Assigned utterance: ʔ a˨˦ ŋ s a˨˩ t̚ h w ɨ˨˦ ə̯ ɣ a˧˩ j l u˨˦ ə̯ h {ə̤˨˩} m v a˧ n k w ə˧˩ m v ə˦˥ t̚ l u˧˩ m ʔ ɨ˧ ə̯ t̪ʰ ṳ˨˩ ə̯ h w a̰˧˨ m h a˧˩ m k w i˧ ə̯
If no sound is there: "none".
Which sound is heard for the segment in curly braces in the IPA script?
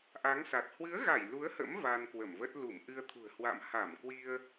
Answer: ə̰˧˥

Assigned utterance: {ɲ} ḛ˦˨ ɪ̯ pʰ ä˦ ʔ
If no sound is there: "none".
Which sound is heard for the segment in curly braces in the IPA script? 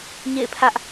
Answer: ɲ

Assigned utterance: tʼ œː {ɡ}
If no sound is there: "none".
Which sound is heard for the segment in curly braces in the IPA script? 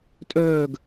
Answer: ɡ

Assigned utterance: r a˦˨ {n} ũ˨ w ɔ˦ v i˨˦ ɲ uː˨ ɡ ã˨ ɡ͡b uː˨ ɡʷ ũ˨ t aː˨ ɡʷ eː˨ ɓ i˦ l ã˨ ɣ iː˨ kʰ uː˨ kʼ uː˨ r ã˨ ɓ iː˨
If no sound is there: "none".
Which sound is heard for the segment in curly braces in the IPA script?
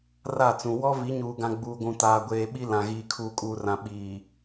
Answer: t͡s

